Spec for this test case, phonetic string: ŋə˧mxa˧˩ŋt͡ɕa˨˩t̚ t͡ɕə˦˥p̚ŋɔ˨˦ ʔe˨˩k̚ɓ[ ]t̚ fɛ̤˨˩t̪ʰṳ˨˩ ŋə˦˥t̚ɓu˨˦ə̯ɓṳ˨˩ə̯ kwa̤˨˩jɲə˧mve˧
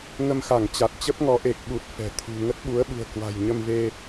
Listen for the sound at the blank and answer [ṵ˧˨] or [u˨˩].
u˨˩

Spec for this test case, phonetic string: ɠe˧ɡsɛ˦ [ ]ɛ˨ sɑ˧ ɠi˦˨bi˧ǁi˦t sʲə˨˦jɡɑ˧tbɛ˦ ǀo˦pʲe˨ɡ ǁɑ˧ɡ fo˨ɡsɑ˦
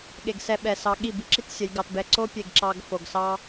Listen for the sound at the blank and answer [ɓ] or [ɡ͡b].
ɓ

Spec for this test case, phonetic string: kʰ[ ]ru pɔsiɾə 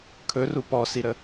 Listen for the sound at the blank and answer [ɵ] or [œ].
ɵ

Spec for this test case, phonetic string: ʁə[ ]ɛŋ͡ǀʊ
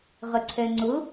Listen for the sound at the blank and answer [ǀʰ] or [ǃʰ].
ǀʰ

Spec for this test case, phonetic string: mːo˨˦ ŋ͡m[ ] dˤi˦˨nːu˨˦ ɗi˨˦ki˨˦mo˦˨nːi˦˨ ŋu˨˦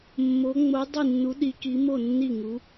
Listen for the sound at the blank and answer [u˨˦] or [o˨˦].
o˨˦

